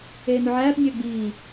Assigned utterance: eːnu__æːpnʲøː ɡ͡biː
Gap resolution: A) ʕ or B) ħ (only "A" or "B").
A